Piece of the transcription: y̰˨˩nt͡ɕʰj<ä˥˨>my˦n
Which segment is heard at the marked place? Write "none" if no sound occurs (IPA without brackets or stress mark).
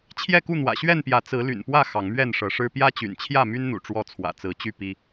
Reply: ä˥˨